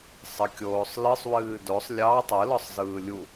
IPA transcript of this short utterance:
sˤ ɘ kʲ oː sˤ l ɨ sˤ w ɨː d o sˤ lʲ ɑ tˤ ɯ l ɔ sˤ z ɯː lʲ u

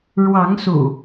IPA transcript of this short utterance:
ɻ w ɑ˨˦ ŋ s ṵ˨˩

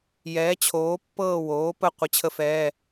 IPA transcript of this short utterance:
j ɛː˩˥ t͡ɕʰ oː˩˥ pː ɤː˦˨ w oː˩˥ p ə˦˨ qʷ ə˧˥˧ t͡ɕʰ ə˥ f ɛː˧˥˧

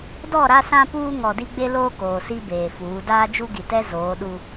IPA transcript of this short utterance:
d ɔ˦˨ ɾ a˦ s ã˦ p uː˦ ŋ ɔ˨ d i˦ ɡ͡b e˦ l oː˦ k oː˨ s i˦ b eː˨ f uː˨˦ d aː˦ d͡ʒ u˦ ɡ i˨ t ɛ˦ z oː˨˦ ɗ u˦

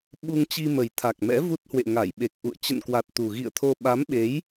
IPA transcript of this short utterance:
ɓ u˧ ŋ t͡ɕ i˧ m ə˨˩ j t̪ʰ a˨˩ k̚ m ɛ̰˧˥ v u˦˥ t̚ h w ḛ˧˨ ŋ a˧˩ j ɓ e˨˩ k̚ ʔ ṵ˧˨ ə̯ t͡ɕ ə̰˧˨ n k w a˨˩ t̚ t̪ u˨˩ ɣ ḭ˧˨ ə̯ t̪ʰ o˧ ɓ a˨˦ m ɓ e˨˦ j

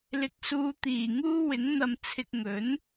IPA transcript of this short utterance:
l ɪ˨˥ k̚ s uː˨˧ t̪ iː˨˩ ŋ uː˥ w ɪ˨˥ ŋ n̪ ɐ˧ m t͡sʰ ɪ˧ k̚ ŋ ɵ˨˥ n

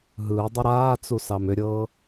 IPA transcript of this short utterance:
ɦ ɯː dˤ ə ɾ aː t͡s u s ɑ m ʏ ɾʲ ɤː

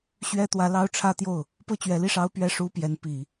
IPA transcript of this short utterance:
ɕ ɥ ɛ˥ t̪ w ä˧˥ l ɑ˥ ʊ̯ ʈ͡ʂʰ ä˥ t̪ j o˥˩ ʊ̯ | p ɤ˥˩ t͡ɕ ɥ ɛ˧˥ l i˥˩ ʂ ɑ˥ ʊ̯ p ɥ ɛ˥ ʂ u˥ p j ɛ˧˥ n p i˨˩˦

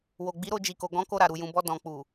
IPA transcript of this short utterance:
w o˨ ɡ͡b i˨˦ ɾ o˧ d͡ʒ i˨ k o˨ ɡ ɔ̃˨˦ k o˧ ɾ a˨ ɾ u˨ j ũ˨ b ɔ˧ d ɔ̃˨ k͡p u˨

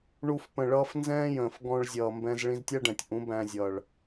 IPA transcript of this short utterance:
ɳ u˧ f p ə̃˨ ɭ ʌː˧ f n z ɛ̃ː˦ j ə̃ː˨ f ɡ ɔ̃˧ ɭ zʲ ʌː˨ m b ɛ̃˧ z ɭ ĩ˧ z tʲ æ˦ ɖ ɛ̃˨ tʲ ʔ ũ˨˦ b æ̃˧ zʲ ʌː˨ ɭ

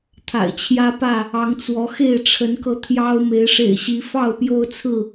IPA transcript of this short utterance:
t̪ʰ a̰˨˩ ɪ̯ t͡ɕʰ j ä˦ p ä˥˨ | ɑ˨˦ ŋ t͡s w ɔ˨˦ x e˥˨ ɪ̯ ʈ͡ʂʰ ə˨˦ n k ɤ˧ t̪ʰ j ɑ˦ ʊ̯ m e˨˦ ɪ̯ ʂ ḛ˨˩ ɪ̯ ɕ i˨˦ f ɑ˥˨ ʊ̯ p j o˦ ʊ̯ t͡sʰ ɹ̩˥˨

